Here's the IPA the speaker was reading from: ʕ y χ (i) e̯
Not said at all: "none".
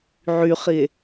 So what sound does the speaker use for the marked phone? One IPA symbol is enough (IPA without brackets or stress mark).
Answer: i